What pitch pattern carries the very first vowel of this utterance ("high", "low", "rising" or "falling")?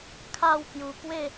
falling